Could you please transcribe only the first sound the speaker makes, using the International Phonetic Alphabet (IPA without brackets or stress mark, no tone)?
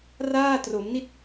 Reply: r